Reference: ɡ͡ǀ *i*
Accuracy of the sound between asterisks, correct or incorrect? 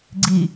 correct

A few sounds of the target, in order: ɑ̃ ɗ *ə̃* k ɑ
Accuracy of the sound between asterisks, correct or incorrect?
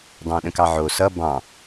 correct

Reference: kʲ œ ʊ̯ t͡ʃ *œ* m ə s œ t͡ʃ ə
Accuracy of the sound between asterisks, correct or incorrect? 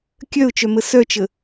correct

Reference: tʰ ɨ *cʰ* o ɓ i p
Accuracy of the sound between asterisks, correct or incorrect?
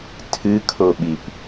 incorrect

